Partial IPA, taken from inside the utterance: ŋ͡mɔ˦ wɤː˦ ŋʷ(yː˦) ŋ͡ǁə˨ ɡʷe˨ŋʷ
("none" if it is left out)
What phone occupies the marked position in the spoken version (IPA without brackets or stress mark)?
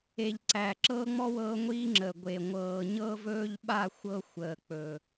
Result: iː˦